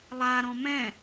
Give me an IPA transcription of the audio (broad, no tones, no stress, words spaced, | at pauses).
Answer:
lˠa ɾɔ̃mɛ̃